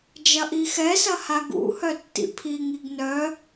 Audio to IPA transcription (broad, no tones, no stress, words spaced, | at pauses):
d͡ʒɐʔixɛsɐ haɡṵhœ tːḭpʰiŋiɡ nœ